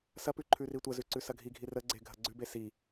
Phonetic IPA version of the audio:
s ɐ p ʉ ǃʰ ʉ r i tʷ ɐ z ʉ ǀ ʉ s ɐ ɡʱ i ɡʱ i r ə ɡ͡ǀ e ɡʱ ɐ ɡ͡ǀ ʉ b e s i

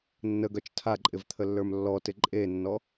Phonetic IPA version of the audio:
nː ə ɡ œ t͡ʃ tʰ a ǃʼ ɪ v t̪ʰ ə lː ə˞ m lː ɔ t ɪ ǃʼ e nː ɔ

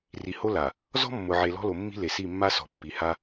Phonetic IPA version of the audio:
r i˨ h o˦ l a˨ | z ɔ̤˦ mː ʊ˨ ʕ e˨ l ɔ̤˦ l o˨ mː i̤˦ l e˨ s i˦˨ mː a˦ s ɔ̤˨ pː i˨ h a˦

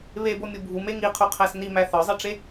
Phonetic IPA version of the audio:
β e b o mʲ u bʱ u m e ŋ i qʰ u qʰ æ s n i m æ θ ɒ zˤ i ʈ͡ʂ e

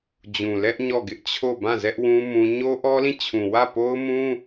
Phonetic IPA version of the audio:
d͡ʑ ũ˨ l ɛ˦ ʔ ɲ ɔ˦˨ ɡ ɪ˦ ʔ t͡ɕʰ o˦˨ b ã˦˨ z ɛ˦ ʔ w ũ˦ m ũ˦ ɲ o˦ ʔ ɔ˦ l ĩ˦˨ t͡ɕʰ ũ˨ w ä˦˨ p o˦ ʊ̯ m ũ˦

